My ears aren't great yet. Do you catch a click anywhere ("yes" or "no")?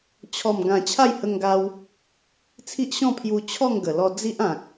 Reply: no